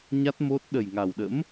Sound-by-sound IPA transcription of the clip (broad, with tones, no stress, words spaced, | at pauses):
ɲa˦˥t̚ mo˦˥t̚ ɗə˨˩jŋa˨˩wɗə̰˧˥m